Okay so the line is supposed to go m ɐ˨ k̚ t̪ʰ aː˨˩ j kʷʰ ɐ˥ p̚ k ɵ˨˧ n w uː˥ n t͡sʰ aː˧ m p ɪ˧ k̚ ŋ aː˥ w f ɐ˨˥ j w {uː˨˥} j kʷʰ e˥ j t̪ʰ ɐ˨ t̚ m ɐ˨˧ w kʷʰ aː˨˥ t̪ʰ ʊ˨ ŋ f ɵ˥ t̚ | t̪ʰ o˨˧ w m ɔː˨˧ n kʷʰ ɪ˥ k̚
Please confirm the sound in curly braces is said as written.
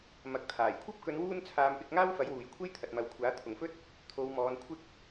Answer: no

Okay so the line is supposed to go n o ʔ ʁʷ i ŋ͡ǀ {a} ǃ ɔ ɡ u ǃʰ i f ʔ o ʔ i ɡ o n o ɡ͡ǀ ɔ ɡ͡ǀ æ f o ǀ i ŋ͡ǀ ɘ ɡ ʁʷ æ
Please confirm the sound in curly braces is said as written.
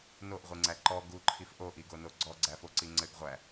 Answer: no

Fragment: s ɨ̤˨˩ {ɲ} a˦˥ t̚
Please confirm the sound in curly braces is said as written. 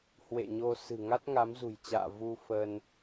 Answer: no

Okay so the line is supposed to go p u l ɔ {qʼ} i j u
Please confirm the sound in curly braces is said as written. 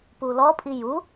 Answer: no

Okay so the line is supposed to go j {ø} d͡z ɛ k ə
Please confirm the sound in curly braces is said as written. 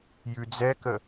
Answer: no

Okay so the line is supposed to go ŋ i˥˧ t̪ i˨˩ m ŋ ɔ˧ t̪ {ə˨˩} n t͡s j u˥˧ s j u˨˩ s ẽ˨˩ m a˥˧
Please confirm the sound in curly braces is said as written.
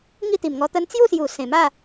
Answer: no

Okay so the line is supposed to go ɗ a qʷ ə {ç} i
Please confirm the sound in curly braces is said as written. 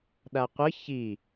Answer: yes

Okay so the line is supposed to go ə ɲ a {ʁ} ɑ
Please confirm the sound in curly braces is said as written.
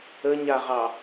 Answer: yes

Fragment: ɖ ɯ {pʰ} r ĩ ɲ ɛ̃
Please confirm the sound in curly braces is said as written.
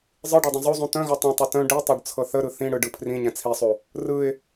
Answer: yes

